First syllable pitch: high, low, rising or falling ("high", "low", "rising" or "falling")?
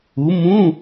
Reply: rising